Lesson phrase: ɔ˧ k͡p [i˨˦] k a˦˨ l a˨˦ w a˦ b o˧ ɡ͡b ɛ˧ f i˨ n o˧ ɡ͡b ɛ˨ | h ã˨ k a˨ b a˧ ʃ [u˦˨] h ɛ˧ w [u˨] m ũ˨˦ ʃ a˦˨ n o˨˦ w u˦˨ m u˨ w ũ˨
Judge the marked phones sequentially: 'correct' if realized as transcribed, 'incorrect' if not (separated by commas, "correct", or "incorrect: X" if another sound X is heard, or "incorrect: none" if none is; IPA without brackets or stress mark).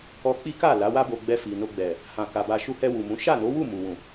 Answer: incorrect: i˦, incorrect: u˧, correct